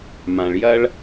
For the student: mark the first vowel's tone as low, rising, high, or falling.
low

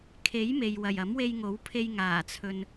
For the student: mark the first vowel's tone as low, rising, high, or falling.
rising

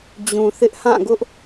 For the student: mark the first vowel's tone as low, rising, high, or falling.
low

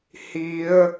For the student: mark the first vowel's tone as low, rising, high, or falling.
rising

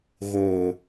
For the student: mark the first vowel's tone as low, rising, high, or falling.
low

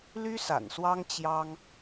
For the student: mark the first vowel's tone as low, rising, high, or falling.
high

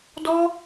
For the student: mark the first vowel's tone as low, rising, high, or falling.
high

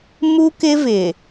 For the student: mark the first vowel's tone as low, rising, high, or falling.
high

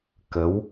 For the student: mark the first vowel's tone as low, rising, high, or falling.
rising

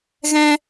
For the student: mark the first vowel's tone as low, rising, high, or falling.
high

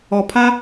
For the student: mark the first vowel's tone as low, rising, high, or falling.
low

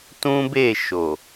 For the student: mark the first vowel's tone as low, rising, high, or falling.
high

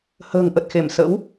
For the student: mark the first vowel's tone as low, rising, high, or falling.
low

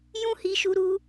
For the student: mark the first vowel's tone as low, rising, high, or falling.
high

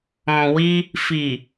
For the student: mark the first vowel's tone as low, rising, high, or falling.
low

